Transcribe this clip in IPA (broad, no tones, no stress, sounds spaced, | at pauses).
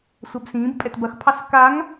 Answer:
sʷ a b s ĩː b pʼ ɛ t b ɐ x pʰ ɑ s k a ŋ